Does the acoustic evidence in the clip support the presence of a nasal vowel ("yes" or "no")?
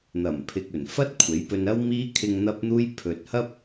no